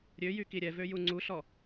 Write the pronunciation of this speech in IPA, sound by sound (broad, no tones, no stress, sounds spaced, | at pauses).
ɾʲ ø j y k i ɾʲ ɛ v ø j u ŋ͡ǀ u ɬ ɔ